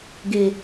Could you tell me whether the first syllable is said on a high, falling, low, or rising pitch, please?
low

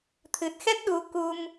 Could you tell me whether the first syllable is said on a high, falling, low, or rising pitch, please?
low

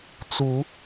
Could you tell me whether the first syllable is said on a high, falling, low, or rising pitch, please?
rising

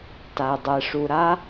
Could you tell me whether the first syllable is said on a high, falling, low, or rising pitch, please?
low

